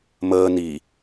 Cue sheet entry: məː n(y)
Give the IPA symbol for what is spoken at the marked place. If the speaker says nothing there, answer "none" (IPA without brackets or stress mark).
i